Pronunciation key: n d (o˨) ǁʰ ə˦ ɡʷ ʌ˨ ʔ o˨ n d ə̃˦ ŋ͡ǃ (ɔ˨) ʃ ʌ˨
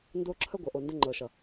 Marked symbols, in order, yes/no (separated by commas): no, no